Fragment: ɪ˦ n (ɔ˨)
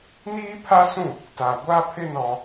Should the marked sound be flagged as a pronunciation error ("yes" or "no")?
yes